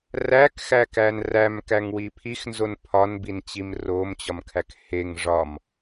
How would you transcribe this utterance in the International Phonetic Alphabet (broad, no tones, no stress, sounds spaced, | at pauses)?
r æ k x æ k æ n r æ m k æ ŋ w i pʰ i x n z o n pʰ ɒ n b i n t͡ɕ i m r o m t͡ɕ ɒ m kʰ æ k h e ŋ ʐ ɒ m